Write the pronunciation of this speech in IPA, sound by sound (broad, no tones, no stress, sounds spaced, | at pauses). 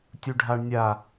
tʲ u ɖʱ a ɳ nʲ a